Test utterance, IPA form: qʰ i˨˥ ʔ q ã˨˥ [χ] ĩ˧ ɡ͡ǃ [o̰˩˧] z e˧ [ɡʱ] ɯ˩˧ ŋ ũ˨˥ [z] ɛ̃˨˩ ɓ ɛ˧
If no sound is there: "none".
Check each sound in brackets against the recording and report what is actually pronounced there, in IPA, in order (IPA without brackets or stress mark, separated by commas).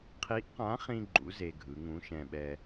χ, ṵ˩˧, ɡʱ, ʃ